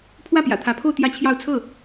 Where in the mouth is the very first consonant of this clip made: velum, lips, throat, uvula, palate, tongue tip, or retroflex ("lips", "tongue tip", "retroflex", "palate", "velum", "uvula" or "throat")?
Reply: lips